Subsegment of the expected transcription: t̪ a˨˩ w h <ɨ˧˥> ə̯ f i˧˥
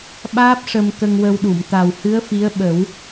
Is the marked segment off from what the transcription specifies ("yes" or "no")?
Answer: no